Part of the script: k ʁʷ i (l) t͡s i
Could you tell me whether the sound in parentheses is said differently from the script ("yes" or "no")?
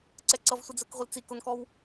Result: no